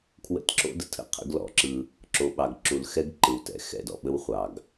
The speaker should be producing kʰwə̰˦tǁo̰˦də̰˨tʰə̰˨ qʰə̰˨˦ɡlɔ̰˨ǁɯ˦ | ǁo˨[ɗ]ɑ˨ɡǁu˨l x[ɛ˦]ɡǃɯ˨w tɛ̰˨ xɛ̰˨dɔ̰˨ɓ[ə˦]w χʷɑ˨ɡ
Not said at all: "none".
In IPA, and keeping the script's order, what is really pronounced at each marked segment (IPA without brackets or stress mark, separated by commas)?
ɓ, ɛ˦, ə˦